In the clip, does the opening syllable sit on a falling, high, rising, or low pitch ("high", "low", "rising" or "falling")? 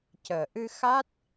low